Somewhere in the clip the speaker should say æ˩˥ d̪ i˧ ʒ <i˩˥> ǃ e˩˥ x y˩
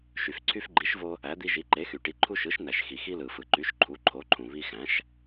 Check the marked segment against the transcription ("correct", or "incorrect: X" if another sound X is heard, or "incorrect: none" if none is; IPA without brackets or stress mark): correct